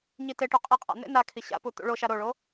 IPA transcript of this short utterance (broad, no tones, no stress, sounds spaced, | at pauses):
ɲ i t e ʈ u qʼ i qʼ a̰ n̪ ḛ n a kʰ i ɕ a̰ p u t̪ ṵ ɭ o ʃ a ɾ o ɭ o